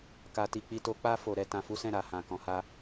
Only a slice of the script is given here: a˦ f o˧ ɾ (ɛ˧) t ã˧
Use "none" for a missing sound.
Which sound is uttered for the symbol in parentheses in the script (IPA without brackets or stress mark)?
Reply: ɛ˧